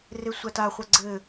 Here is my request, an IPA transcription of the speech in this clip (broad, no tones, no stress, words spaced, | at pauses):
resʷata χʷaɡ͡ǀɘ